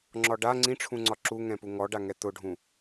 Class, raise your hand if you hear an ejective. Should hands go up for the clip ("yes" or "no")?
no